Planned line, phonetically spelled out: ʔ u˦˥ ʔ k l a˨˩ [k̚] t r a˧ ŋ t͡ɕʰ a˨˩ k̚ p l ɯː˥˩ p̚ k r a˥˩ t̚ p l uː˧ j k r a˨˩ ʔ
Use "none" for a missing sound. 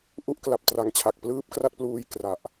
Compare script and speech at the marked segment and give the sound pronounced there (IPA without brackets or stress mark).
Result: p̚